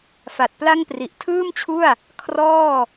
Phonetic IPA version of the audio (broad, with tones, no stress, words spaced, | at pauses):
fa˨˩t̚ pla˥˩ŋpri˨˩ʔ tʰɯː˥˩mt͡ɕʰu˥˩a̯ | kʰrɔː˥˩